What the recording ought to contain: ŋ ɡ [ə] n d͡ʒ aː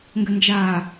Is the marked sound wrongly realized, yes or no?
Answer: no